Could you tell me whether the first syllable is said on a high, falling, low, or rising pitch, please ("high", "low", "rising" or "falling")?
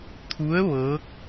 rising